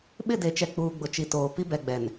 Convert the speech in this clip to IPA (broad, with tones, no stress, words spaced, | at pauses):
ɓɪ˦˨de˨t͡ʃɛ˨ k͡puː˨ɡ͡bʊ˨ t͡ʃi˨toː˨ pi˦bɛ˨ɡ͡bɛ˨n